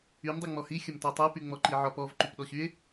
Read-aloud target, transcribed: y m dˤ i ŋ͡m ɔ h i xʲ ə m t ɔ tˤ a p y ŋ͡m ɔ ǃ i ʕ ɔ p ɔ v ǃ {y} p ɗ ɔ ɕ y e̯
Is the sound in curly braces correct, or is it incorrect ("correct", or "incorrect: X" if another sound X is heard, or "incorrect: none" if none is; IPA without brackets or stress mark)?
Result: correct